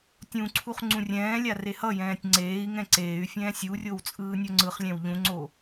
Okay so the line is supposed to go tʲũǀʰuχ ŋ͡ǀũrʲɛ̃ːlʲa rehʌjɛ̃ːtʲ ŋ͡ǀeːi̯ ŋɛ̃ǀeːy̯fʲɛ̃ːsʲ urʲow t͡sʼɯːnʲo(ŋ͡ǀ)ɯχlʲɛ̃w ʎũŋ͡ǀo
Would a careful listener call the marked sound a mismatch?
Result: no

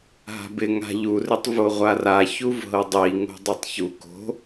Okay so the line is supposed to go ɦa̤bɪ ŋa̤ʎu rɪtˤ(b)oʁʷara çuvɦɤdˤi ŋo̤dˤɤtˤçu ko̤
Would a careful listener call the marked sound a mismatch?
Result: yes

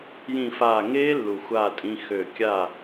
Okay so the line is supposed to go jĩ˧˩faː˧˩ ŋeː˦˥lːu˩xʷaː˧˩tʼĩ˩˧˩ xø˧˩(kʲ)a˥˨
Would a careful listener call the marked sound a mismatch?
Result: no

